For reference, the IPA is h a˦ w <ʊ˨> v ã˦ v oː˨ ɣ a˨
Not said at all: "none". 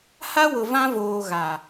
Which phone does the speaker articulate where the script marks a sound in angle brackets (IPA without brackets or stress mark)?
ʊ˨